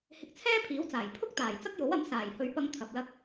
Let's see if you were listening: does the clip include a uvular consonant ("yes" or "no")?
no